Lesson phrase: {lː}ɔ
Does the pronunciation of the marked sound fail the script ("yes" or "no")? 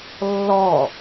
no